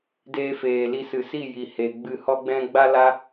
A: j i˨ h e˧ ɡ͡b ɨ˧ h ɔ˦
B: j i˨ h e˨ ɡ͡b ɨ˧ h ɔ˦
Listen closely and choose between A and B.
B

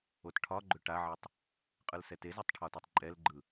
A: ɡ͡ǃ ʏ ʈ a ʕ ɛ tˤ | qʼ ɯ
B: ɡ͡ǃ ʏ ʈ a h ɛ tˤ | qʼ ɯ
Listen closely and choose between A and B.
A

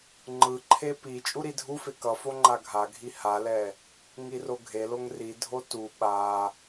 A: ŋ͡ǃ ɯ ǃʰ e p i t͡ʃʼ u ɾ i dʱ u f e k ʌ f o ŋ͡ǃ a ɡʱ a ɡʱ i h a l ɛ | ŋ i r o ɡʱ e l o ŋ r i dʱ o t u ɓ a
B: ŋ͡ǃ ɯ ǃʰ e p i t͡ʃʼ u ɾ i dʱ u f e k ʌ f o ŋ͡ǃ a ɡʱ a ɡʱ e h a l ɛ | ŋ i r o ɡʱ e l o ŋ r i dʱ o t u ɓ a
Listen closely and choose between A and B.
A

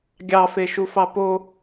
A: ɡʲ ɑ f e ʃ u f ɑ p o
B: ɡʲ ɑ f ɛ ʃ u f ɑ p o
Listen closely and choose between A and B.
A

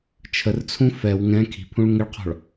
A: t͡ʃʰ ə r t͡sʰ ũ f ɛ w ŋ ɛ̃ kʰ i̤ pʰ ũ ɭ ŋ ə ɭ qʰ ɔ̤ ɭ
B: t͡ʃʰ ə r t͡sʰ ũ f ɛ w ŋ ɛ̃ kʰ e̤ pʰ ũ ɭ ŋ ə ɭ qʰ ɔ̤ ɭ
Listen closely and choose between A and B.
A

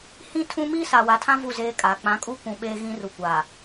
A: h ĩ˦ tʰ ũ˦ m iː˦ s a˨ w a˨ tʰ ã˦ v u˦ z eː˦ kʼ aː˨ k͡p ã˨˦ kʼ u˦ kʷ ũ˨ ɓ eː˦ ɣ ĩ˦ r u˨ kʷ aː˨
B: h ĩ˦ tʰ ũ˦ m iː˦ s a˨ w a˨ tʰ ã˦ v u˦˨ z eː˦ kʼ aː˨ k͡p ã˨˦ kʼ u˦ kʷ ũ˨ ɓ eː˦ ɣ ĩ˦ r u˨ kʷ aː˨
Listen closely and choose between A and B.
B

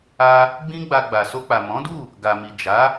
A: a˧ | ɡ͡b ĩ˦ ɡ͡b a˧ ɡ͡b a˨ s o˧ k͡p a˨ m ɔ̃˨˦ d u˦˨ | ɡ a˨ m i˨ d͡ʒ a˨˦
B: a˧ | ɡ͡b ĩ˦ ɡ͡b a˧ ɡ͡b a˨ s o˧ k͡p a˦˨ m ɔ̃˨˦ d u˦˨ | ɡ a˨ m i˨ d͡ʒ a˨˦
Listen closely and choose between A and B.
A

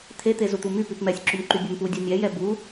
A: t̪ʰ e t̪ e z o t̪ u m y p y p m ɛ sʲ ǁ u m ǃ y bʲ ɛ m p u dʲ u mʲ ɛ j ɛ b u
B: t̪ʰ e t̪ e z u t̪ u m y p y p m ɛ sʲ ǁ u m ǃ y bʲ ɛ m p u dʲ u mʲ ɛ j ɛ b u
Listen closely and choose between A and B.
B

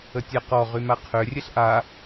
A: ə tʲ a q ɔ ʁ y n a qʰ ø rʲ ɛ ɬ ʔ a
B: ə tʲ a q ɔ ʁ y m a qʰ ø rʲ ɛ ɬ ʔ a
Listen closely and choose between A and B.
B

